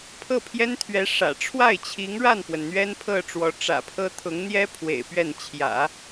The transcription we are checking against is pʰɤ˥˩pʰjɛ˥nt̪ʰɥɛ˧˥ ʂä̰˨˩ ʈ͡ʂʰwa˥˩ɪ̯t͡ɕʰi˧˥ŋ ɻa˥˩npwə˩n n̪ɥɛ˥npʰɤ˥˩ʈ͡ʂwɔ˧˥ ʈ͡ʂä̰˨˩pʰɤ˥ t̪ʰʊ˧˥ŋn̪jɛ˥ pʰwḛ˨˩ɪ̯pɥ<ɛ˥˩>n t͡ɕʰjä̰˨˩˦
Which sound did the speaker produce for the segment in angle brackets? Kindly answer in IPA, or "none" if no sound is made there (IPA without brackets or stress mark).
ɛ˥˩